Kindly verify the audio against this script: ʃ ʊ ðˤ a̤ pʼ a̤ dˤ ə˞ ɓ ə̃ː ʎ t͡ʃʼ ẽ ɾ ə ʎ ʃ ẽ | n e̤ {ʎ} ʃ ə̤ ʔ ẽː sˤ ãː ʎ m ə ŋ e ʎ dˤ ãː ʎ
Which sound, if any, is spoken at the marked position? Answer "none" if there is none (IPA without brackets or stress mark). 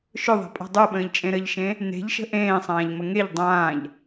ʎ